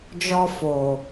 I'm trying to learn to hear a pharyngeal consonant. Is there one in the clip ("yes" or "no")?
no